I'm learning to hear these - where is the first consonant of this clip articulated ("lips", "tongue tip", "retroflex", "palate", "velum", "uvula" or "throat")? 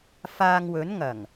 lips